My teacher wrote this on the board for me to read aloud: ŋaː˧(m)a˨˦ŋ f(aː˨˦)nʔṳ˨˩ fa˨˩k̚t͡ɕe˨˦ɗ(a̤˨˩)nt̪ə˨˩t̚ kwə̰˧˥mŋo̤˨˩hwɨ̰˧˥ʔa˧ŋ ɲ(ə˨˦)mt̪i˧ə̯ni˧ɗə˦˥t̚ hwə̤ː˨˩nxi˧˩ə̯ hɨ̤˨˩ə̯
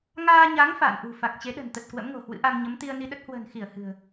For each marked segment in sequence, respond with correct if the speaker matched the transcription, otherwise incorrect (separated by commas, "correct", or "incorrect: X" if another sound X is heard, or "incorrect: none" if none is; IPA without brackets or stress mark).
incorrect: ɲ, incorrect: a̰ː˧˨, incorrect: ə̤˨˩, correct